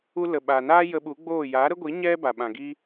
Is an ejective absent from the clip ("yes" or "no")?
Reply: yes